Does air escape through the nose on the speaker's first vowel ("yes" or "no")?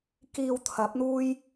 no